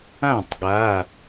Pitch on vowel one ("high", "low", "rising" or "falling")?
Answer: falling